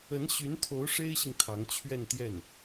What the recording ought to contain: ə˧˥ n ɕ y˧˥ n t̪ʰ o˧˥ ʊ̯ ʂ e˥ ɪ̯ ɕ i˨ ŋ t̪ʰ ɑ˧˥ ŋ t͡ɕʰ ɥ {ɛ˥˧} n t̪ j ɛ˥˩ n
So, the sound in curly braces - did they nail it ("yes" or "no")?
yes